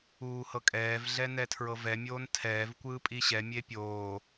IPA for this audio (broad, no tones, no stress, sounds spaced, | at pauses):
uː h ɤ kʼ ɛː v ɮ ɛ n ɛ tʰ ɹ ɤ v ɛ mʲ oː n tʰ ɛː v kʷ ɯː pʼ i ɕ ɛ mʲ e pʲ oː